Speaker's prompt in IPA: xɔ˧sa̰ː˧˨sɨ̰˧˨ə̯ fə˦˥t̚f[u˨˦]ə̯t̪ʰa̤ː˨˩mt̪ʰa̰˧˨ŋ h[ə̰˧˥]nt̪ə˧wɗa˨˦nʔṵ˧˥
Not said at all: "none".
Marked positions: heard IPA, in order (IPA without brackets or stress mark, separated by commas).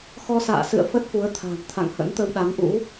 u˨˦, ə̰˧˥